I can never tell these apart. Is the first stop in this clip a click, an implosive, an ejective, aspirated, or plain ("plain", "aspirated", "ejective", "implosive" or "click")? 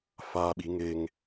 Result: implosive